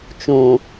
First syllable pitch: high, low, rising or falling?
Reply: low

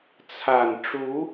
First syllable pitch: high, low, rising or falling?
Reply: low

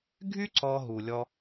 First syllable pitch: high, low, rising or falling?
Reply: high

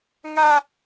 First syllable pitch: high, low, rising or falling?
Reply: high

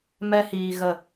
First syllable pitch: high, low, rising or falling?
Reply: high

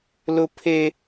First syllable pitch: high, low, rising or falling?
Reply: high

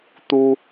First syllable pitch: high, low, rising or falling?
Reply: high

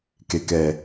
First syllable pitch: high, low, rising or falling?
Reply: low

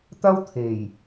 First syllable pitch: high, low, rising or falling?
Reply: high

